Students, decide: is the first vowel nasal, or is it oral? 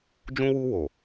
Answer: nasal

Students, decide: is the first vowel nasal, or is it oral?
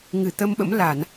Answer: oral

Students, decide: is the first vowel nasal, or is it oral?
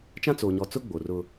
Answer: nasal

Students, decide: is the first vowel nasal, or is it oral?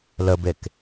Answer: oral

